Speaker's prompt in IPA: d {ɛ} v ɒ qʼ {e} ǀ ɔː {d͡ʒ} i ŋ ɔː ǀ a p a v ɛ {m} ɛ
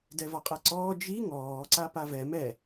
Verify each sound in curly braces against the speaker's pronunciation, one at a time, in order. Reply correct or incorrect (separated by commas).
correct, incorrect, correct, correct